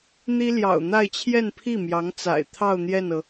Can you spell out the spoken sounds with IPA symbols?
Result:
n̪ i˥ l j ɑ̰˨˩ ʊ̯ n̪ a˥˧ ɪ̯ t͡ɕʰ j ɛ˥˧ n pʰ i˥˩ m j ɑ˧˥ ŋ t͡s a̰˨˩ ɪ̯ t̪ʰ ɑ˥˧ ʊ̯ n̪ j ɛ˥˩ n ɤ˩

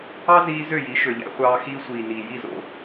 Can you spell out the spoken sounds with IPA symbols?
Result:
ɑ˦ z iː˧ z ø˦˨ j i˨˦ ʃ ø˨ ʎ æ̰˧ χʷ ɑː˧ x iː˧ sʷ iː˨ n iː˨ j i˦˨ z o̰˧

